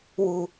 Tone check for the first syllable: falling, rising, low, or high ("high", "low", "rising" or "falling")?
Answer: low